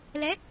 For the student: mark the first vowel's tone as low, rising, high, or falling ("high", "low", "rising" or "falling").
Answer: rising